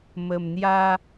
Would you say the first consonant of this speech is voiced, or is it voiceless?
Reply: voiced